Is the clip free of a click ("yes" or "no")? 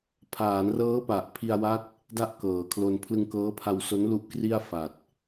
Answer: yes